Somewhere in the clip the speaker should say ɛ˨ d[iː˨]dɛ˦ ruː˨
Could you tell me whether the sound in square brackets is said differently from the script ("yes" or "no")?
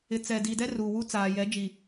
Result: no